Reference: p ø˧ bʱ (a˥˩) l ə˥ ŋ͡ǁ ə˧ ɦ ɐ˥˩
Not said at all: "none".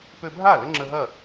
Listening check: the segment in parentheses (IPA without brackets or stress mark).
a˥˩